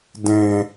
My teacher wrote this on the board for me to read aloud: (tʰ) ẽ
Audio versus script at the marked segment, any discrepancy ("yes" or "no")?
yes